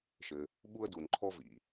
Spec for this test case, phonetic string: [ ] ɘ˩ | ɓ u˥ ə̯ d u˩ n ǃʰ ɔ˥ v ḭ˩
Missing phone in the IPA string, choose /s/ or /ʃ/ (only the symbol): ʃ